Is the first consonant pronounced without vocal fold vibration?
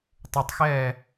yes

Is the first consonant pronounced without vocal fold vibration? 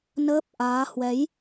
no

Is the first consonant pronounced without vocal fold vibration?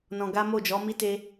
no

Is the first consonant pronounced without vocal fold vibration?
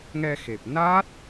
no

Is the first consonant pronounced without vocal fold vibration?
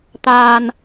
yes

